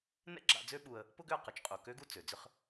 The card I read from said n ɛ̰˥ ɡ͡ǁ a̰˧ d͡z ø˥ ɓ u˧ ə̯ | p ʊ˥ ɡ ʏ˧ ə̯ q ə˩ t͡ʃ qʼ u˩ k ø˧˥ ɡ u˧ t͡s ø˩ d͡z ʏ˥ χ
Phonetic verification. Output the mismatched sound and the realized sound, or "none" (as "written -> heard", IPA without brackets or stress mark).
none